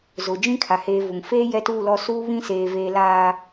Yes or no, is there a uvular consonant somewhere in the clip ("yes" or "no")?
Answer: no